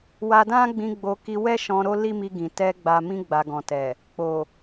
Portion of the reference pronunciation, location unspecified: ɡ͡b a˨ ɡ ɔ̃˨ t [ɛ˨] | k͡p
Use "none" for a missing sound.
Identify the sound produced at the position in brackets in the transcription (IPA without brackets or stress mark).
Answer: ɛ˨